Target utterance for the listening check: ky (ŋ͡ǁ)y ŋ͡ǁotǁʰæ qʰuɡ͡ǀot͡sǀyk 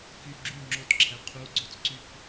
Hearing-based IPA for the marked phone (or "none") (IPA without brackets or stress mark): ɡ͡ǁ